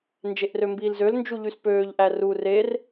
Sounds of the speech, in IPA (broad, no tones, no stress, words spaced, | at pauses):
nd͡ʒeʔrømbiːlzøl nd͡ʒuʎyspøːʎ ʔæru rer